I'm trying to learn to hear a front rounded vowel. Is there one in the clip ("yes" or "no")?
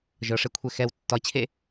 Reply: no